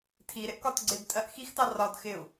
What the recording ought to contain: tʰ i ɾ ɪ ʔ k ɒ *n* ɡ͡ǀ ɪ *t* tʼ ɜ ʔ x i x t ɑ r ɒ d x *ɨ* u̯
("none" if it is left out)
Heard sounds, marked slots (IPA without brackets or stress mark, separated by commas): t, d, ɪ